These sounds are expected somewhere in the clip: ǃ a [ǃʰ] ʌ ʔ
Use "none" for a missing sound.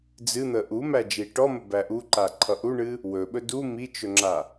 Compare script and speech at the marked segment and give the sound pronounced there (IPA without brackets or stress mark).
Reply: ǃʰ